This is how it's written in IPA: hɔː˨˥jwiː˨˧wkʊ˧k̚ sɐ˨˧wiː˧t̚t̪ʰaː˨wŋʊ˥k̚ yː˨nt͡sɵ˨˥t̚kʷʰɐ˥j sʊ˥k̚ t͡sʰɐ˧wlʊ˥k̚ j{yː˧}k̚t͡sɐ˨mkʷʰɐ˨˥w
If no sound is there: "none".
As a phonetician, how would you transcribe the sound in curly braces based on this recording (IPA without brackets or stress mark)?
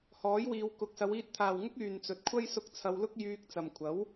yː˧